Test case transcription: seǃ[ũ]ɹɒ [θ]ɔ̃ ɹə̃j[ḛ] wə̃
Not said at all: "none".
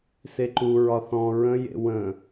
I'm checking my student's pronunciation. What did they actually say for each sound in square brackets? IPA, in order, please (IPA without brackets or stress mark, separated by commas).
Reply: u, θ, ḛ